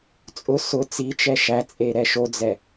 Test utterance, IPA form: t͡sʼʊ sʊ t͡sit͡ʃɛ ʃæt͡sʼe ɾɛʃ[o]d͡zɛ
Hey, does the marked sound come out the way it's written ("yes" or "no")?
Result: yes